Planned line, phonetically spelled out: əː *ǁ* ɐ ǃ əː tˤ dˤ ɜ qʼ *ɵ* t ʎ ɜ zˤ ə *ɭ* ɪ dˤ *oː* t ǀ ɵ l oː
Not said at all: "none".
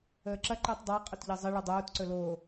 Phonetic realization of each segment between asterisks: ǁ, ɵ, ɭ, oː

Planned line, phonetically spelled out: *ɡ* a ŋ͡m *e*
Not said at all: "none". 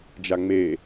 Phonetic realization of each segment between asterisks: d͡ʒ, e

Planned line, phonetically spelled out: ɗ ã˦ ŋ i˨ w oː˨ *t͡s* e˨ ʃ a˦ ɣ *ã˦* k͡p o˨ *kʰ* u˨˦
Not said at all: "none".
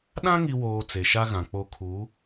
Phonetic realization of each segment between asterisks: t͡s, ã˨, kʰ

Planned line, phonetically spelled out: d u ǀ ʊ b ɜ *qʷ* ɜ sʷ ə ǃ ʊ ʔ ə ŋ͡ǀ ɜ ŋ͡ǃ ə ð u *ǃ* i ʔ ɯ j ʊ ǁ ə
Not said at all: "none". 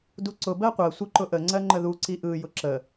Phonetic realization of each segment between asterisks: qʷ, ǀ

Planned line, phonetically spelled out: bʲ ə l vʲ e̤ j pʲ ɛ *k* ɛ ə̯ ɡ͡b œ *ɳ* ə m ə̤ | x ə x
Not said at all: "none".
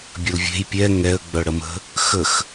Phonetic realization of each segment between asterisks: ŋ, ɽ

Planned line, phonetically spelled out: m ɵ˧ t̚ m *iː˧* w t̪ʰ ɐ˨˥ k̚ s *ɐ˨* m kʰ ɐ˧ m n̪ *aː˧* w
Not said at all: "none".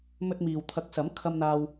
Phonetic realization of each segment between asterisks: iː˨, ɐ˨˥, aː˧

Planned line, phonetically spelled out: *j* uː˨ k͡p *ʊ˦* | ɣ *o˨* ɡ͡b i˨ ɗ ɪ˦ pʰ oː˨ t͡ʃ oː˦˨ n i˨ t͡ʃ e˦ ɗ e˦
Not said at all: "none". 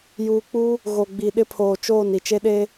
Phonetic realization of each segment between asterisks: j, u˦, o˨

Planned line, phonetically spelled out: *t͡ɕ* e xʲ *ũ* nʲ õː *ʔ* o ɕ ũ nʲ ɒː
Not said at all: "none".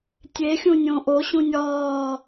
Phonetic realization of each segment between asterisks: tʲ, ũ, ʔ

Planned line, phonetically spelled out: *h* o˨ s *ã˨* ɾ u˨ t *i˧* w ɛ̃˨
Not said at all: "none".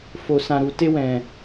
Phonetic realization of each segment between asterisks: f, ã˨, e˧

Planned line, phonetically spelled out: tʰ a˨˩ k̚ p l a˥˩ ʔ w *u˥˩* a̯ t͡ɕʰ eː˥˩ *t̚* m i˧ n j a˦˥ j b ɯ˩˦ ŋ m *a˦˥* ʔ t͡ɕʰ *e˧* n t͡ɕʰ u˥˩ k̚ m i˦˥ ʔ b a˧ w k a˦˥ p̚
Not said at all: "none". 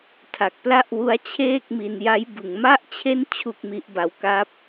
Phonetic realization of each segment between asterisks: u˦˥, k̚, a˥˩, e˥˩

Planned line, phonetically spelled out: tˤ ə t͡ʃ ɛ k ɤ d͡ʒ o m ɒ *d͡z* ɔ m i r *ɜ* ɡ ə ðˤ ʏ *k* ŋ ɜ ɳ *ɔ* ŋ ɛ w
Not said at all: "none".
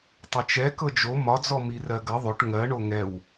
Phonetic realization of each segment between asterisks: d͡z, ɜ, ʈ, o

